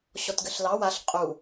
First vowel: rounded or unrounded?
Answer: rounded